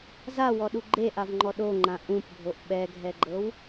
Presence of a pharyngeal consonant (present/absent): absent